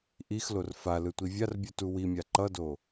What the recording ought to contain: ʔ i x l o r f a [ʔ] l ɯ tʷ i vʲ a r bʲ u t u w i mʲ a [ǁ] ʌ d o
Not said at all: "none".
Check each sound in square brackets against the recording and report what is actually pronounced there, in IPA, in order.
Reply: none, ǃ

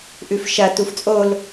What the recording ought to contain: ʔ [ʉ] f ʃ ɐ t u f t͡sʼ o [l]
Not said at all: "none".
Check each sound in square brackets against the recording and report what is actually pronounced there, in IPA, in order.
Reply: ʉ, l

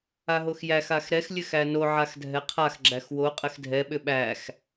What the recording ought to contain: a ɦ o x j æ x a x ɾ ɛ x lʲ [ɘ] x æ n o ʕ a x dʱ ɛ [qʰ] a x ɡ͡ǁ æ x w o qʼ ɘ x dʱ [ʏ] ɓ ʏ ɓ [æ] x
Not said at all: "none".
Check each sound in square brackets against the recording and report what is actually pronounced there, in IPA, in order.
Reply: ɘ, qʰ, ɛ, æ

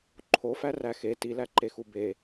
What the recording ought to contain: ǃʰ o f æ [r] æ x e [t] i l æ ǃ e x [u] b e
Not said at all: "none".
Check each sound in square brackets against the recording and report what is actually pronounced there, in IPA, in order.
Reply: r, t, u

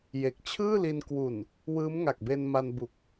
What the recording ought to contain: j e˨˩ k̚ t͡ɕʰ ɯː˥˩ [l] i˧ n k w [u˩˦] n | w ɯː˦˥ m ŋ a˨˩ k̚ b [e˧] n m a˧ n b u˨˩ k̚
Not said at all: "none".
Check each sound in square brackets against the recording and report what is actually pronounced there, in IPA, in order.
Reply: l, u˨˩, e˧

